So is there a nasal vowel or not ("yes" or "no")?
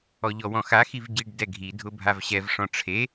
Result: yes